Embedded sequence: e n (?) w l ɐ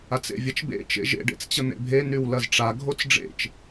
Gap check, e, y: y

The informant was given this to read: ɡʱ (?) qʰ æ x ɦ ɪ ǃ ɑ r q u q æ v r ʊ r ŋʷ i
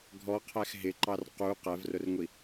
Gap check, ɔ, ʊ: ɔ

